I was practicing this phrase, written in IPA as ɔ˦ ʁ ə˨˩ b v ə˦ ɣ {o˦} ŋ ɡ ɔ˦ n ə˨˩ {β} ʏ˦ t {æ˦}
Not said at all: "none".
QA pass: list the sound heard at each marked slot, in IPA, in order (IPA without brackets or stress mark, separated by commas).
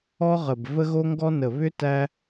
o˦, β, æ˦